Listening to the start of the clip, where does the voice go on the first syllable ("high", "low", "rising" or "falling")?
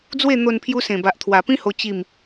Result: falling